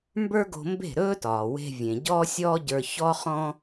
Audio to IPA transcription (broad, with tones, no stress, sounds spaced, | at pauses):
m b ə˞˥ ɡ o̤˧ m b e̤˥˩ ɾ ɵː˥ t ɒː˩ w e̤˧ vʲ ẽ˩ ɟ ɔː˥ sʲ ɔː˥ ɟ ə˞˧ ç ɔ˥ χ ɔ̃˥